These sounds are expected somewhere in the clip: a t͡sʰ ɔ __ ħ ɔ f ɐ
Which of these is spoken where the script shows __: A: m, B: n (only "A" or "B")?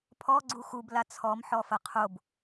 A